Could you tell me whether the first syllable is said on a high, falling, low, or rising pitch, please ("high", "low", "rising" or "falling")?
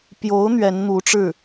rising